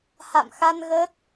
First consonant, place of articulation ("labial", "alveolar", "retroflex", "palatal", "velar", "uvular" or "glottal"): glottal